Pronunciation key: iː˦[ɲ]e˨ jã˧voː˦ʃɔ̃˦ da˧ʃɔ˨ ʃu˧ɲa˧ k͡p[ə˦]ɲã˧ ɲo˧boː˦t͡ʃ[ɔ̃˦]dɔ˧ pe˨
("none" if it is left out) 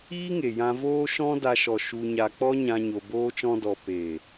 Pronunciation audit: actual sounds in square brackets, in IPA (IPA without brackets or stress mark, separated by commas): ŋ, ɔ˦, ɔ̃˦